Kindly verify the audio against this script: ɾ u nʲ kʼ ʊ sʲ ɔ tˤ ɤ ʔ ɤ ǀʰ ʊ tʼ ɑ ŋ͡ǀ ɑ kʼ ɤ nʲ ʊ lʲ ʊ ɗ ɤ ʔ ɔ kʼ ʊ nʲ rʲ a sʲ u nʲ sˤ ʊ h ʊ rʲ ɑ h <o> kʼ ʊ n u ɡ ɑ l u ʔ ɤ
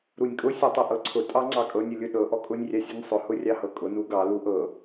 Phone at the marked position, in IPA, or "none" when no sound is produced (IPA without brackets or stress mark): ɤ